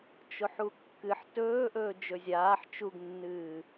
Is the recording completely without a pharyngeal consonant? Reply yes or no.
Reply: no